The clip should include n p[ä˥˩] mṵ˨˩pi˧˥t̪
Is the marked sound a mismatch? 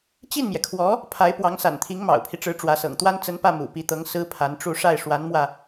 no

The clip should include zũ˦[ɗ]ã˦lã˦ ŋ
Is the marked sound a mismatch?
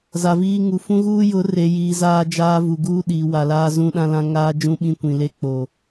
no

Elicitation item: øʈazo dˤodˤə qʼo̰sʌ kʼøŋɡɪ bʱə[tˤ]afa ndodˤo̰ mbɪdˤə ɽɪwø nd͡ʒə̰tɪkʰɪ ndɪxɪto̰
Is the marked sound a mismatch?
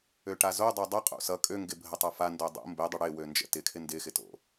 no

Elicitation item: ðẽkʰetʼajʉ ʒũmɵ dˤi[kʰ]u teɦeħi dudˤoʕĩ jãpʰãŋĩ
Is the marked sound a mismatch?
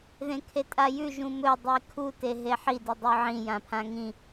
no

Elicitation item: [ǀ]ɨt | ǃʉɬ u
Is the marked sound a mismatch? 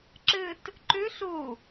yes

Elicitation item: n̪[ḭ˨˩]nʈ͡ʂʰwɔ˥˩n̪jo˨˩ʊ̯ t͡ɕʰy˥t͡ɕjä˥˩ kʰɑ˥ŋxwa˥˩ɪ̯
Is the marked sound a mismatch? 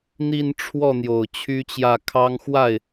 yes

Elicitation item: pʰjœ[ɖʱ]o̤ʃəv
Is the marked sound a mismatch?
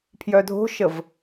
yes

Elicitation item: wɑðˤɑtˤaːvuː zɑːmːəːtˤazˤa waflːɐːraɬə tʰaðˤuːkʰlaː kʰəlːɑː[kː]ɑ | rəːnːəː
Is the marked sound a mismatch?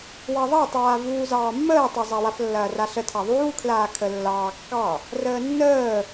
no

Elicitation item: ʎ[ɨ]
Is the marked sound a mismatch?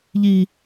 yes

